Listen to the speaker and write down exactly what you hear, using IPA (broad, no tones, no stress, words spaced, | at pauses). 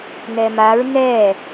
nɛmaɹ nɛ